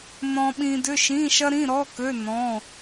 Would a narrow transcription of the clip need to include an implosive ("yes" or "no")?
yes